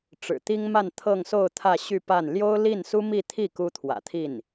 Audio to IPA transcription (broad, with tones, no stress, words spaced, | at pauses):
ʈ͡ʂɻ̩˨˩t̪i˥ŋma˥˧n t̪ʰɤ˥˧ŋso˥˧ʊ̯ t̪ʰä˥˧ɕy˥˧ pa˥˩n ljo˥ʊ̯li˥˩nsu˥ mi˥˧t̪ʰi˥˩ ku˥t̪ʰwä̰˨˩t̪ʰi˥˩n